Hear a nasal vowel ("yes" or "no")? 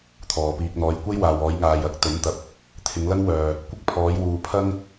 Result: no